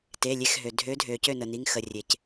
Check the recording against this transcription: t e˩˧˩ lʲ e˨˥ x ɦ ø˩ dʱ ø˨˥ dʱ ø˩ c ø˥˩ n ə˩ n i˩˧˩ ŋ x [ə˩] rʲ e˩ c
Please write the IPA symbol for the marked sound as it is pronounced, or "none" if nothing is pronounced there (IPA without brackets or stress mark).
ə˩